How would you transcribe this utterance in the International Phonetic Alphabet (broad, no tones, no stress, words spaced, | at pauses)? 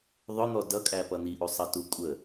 ðˤʊn̪ɔ dʌkʼæpʌ n̪iʔusˤʌtu kʷʼə